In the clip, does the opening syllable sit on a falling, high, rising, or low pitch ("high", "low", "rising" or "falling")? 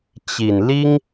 low